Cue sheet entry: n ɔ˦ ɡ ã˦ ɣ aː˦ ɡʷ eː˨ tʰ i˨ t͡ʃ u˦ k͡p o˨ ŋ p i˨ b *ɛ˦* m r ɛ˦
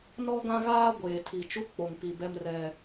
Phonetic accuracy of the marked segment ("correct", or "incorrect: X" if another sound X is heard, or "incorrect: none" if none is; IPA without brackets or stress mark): correct